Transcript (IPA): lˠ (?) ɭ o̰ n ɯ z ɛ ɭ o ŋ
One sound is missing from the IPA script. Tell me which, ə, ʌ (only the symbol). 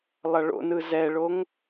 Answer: ʌ